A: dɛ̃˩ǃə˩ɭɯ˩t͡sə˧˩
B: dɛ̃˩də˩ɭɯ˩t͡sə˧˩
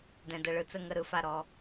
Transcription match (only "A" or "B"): B